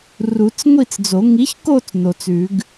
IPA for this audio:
r u˨˩˦ t͡s ŋʷ i˥˧ t͡s d͡z o˨˩˦ ŋ i˨˥ ç k o˥˧ t͡s n o˨˩˦ t͡s ʉ˨˩˦ ɡ

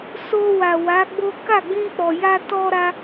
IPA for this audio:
s o˧ w a˨ w a˨˦ ɡ͡b o˦ k a˦˨ ɡ͡b ĩ˧ k͡p ɔ˨ j a˧ t ɔ˦ ɾ a˦

